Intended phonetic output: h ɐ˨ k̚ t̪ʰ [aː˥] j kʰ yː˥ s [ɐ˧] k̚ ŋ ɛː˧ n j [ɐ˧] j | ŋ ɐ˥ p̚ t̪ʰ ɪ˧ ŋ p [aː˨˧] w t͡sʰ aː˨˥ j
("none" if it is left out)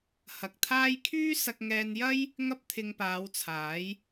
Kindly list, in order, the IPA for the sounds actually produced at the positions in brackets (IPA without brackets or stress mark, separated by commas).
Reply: aː˥, ɐ˧, ɐ˥, aː˨˧